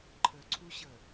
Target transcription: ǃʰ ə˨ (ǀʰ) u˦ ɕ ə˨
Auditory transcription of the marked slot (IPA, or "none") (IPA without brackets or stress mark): ǀʰ